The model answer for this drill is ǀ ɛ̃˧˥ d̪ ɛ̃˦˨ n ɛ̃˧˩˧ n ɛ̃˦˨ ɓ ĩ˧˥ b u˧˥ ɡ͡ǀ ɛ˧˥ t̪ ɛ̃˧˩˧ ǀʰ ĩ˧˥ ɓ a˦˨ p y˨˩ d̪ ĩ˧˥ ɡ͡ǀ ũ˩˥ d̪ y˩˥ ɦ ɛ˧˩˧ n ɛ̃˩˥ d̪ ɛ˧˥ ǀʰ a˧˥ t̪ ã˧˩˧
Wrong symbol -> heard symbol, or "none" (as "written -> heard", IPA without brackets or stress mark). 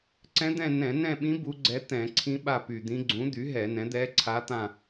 ã˧˩˧ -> ã˦˨